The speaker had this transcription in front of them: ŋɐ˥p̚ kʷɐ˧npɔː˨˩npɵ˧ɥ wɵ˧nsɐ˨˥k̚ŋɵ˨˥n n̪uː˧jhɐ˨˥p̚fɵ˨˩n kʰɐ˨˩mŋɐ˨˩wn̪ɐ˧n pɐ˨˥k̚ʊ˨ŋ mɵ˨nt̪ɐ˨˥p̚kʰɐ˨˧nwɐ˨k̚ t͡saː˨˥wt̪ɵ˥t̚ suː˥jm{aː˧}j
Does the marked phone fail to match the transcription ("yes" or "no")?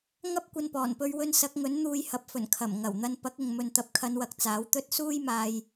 no